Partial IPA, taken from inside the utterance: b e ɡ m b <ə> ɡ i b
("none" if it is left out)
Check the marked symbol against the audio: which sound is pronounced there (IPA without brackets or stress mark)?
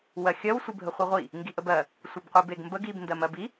ə